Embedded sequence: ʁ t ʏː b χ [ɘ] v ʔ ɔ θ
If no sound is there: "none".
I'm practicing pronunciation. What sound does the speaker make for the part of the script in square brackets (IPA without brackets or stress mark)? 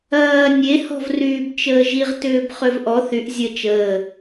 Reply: ø